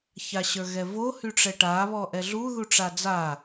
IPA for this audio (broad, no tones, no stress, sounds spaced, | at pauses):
ç a ɕ ə˞ ɣ ɛ v o h y ʈ͡ʂ ɛ ʈ a β ɔ ʔ ɛ ɮ u ð u ʈ͡ʂ a d͡z a